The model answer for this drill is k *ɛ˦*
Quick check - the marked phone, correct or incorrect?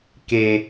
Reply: incorrect